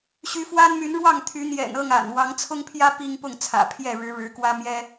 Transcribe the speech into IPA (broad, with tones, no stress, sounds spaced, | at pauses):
ɕ y˨˦ f w a˦ n m y˨˦ n ɻ w ɑ˥˨ ŋ t̪ʰ y˨˦ n̪ j ɛ̰˨˩ n ɤ˥˨ ŋ a̰˨˩ n w ɑ˨˦ ŋ t͡sʰ ʊ˦ ŋ pʰ j ä˦ p i˦ ŋ p ʊ˥˨ ŋ t͡sʰ ä̰˨˩ pʰ j ɛ˥˨ ɻ ɻ̩˨˦ ɻ ɻ̩˨˦ k w ä˦ m j ɛ˦